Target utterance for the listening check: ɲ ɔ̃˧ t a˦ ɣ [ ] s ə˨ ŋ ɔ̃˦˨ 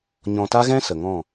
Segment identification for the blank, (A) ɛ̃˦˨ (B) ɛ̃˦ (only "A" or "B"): B